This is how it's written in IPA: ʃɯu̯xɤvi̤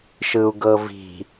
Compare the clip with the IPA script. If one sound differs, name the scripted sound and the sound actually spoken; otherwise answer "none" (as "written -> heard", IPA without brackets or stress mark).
x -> ɡ